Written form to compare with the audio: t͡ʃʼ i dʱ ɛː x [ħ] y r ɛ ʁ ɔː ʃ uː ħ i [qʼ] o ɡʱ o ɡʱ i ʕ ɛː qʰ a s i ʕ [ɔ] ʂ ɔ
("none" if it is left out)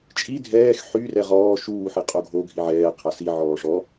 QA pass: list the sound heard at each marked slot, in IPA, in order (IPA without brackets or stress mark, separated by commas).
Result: ħ, qʼ, ɔː